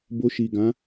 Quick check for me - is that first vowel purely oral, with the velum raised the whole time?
yes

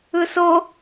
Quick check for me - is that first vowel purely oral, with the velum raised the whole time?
yes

